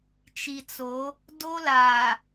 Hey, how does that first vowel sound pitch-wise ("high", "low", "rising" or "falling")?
low